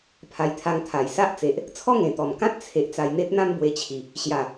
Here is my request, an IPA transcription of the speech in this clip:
pʰ a˨˩ j t̪ʰ a˧ ŋ t̪ʰ a˨˩ j s a˦ ʔ t͡s e˨ ʔ | t͡sʰ ɔ˦ ŋ ẽ˨˩ t̪ ɔ˨˩ m k ã˦ t̚ t͡sʰ e˨ ʔ t͡s a˧ j n̪ e˦ t̚ n̪ ã˦ m b w e˧ t͡ɕʰ i˨˩ | ɕ j a˨˩

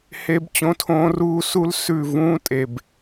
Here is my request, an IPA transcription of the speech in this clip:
h e˦ b t͡ɕ õ˦ tʰ õː˦ r uː˦ s u˦ l s ʉ˦˨ v ũː˦ tʼ e˨ b

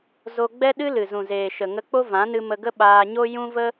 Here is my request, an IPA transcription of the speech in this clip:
z o˧ ɡ͡b ɛ˦ ɗ ɨ˦ l ɨ˨ z ũ˨ z eː˨ ʃ ə˨ ŋ ə˧ k͡p o˦ v ã˨˦ n ɨ˧ m ə˧ ɡ ə˦ ɓ aː˧ ɲ o˦ j ũ˦ v ə˦

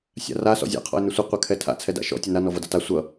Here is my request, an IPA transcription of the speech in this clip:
sʲ a̰ r a s ɔ̰ zʲ a̰ qʰ ɔ̰ ɪ̯ n ʏ sʷ ʌ qʷ a kʰ ɛ tʰ a̰ t͡sʰ ɛ d a̰ ʃ ɔ̰ tʲ ɛ n a n ɔ v ʌ d ʌ t a sʷ ʌ

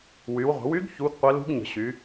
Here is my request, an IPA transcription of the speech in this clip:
w y˩˧ w ʁʷ ə̤˩˧ w y˧˥ ɡ ç u˧˥ ɡ qʷ ə˧˥ l ṳ˧˥ ɡ ɲ ə̤˩˧ ɕ y˩˧

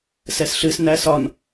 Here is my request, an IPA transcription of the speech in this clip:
s ɛ s ɬ ɨ s n æ s ɒ n

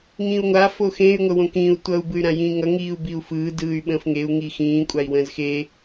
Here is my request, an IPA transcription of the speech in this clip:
ŋ ĩː u̯ ŋʷ a f o x ẽ y̯ ŋʷ ə w õ k ĩː u̯ tʷ ʌ u̯ b ɯ y̯ ɾ ã j ĩː ŋ ʌ ŋ iː u̯ b i u̯ f ɯː d ɯː y̯ ɓ ə̃ː f ŋ e u̯ ŋ iː x ĩː kʷʼ a i̯ w ə̃ː z x e

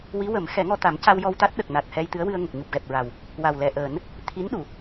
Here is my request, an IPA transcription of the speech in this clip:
w i˧˥ w ə˨˩˦ m x ɛ˨˩˦ ŋ ɔ˧ t̪ a˨˩˦ m c a˧ w j ɔ˧ w t̪ a˦˥ t̚ ɗ ə˨˩ k̚ n a˨˩ t̚ h ɛ˧ j t̪ ɨ˧˥ ə̯ w ɨ˧ ə̯ ŋ ə˨˩ k̚ ɲ u˨˩ p̚ ɣ ɛ˨˩ p̚ ɹ a˨˩ w | w a˨˩ w l ɛ˨˩ ʔ əː˨˩˦ n | t̪ʰ i˧˥ n ɗ u˨˩˨

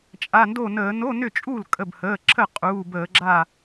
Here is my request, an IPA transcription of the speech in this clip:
t͡ʃʼ a˩˧˩ n d o˥˩ n əː˧˩˧ n o˧˥˧ n ʏ˥˩ t͡ʃʼ u˥˩ l kʼ ə˩˧˩ b h əː˩˧˩ ǁʰ ə˥˩ qʼ uː˩˧˩ b əː˧˩˧ ɡ͡ǁ a˥˩

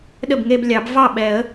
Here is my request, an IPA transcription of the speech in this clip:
ɗ ə˥˩ b ŋ e˥˧ b lʲ ɑ˨˩˦ b v ɑ˥˩ ɓ ɛ˨˩˦ ə̯

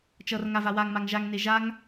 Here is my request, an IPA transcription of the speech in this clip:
t͡ʃ ʌ r ŋ a v a w a ŋ m a ŋ ʒ a ŋ n e ʒ a ŋ

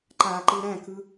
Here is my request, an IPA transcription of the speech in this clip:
ǃ a ǃ ɯ ɾ æ̃ k ɯ

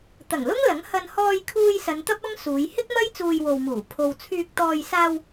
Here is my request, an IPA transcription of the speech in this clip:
t̪ ɐ˨˩ ŋ l ʊ˥ ŋ l ɐ˨˥ ŋ h ɐ˧ n h ɔː˧ j kʰ uː˧ j s ɐ˨˧ n t̪ ɐ˥ p̚ ɐ˥ ŋ s uː˨˧ j h ɪ˥ k̚ m ɐ˥ j t͡s uː˧ j w o˨ w m uː˨˩ pʰ o˨ w t͡sʰ yː˨ k̚ t̪ ɔː˨ j s aː˧ w

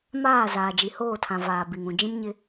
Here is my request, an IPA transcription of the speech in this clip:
m aː˦˨ z aː˨ d͡ʒ i˨ h oː˦˨ tʰ ã˨ v aː˨ b i˨ ŋ ũ˨ d͡ʒ ĩ˦ m ɲ ɪ˦

